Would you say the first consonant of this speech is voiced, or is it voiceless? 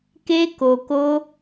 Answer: voiceless